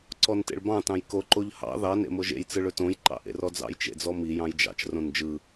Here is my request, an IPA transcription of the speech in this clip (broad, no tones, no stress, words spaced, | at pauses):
ǀɔntḛɭbɑ̃ tɑ̃jko ǃoʎhɑ̰ ðɑ nḛmoʒḛj t͡sɯɭɵtõj ǃɑ̰ʔḛrɔd͡zɑ̰j t͡ʃḛd͡zɔmi jɑ̃jd͡ʒɑ̰t͡ʃ rõnd͡ʒɯ